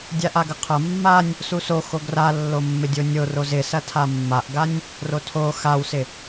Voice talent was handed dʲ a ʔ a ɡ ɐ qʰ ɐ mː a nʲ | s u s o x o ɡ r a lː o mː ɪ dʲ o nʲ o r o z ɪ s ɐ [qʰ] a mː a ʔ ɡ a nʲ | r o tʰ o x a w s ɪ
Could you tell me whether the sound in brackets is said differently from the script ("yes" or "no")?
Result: yes